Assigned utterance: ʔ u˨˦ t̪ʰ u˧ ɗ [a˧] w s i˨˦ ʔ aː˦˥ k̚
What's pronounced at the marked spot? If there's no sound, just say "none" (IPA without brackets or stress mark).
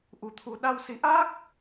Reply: a˧